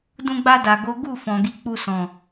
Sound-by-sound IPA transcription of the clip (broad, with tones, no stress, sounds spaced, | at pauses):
d ũ˧ ɡ͡b a˧ d a˨ ɡ o˨˦ ɡ u˦˨ f ɔ̃˨ ɡ i˨˦ k͡p u˧ s ɔ̃˨